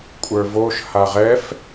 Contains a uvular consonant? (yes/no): yes